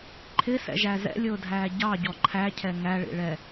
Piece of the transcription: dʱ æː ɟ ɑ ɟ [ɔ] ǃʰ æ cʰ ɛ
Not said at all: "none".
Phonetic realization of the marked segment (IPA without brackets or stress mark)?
ɔ